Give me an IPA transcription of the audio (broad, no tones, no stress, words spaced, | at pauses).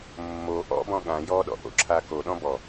mːo ʔɔ̰bɔ̃ ɠã jɔɗɔ̰ʔo̰ǁʰa koɗɔ̃ bɔ